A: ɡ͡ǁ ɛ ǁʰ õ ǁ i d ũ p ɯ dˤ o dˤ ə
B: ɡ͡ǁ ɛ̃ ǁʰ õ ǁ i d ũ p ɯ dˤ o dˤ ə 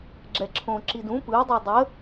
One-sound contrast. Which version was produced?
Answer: A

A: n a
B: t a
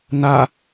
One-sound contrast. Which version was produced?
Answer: A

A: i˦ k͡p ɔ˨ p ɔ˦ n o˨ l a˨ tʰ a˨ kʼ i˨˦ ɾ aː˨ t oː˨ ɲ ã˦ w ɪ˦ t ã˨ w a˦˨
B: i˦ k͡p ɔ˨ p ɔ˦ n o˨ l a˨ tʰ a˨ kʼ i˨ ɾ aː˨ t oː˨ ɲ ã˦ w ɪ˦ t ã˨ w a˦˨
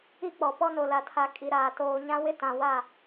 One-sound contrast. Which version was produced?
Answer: B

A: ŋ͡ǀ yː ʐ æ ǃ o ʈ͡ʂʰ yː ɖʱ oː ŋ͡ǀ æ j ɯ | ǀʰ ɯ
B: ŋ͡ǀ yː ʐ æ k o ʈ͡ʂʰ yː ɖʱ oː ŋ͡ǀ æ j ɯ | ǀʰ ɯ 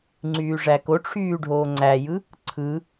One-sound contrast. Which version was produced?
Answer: B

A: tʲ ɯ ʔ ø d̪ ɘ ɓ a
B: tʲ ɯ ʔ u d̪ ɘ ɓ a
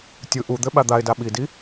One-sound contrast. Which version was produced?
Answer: B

